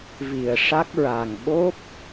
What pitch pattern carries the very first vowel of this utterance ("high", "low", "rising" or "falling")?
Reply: low